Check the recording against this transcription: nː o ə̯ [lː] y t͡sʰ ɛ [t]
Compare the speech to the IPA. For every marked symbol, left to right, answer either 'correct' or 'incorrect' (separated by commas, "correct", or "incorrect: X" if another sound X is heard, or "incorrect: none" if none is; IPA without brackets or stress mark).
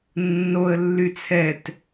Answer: correct, correct